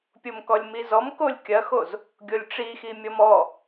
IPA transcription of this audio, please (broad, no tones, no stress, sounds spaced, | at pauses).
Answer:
pʲ o m k ɔ lʲ m i z ɔ m k o lʲ kʲ ɐ x o z | ɡʲ o lʲ ʈ͡ʂ i x i mʲ ɔ m ɔ